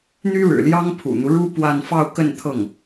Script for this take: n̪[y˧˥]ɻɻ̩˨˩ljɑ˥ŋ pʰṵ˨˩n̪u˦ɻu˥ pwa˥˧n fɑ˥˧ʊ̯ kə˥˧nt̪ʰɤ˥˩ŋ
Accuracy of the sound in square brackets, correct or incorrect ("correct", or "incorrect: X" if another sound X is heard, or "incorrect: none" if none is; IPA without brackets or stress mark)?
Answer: incorrect: y˥